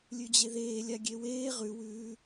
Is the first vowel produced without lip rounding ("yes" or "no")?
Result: no